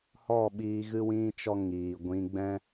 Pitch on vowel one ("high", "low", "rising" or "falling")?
falling